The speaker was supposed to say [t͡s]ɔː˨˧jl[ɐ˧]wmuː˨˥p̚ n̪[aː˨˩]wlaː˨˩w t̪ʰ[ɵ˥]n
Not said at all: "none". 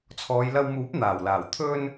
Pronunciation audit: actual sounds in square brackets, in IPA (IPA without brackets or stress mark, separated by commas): t͡sʰ, ɐ˧, aː˨˩, ɵ˧